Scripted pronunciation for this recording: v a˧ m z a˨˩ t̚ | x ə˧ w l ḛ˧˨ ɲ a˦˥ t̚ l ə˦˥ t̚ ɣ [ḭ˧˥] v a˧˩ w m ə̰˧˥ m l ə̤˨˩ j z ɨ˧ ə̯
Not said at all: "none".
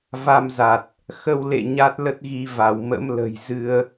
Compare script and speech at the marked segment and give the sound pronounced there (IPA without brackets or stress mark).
i˧